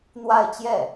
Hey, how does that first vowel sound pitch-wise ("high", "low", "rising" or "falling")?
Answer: falling